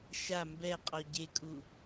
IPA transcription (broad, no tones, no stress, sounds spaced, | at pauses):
ʃ a m b ɛ qʼ ɔ ɟ e kʼ u